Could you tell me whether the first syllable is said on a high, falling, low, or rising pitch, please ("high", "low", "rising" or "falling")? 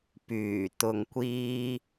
low